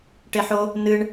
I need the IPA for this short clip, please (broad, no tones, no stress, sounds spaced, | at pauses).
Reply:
ʈ e ħ o | n ɨ ɳ